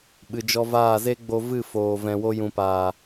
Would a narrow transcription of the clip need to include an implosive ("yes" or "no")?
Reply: yes